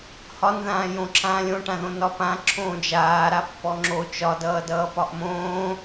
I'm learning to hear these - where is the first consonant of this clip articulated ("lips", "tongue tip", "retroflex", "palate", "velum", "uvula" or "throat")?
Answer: throat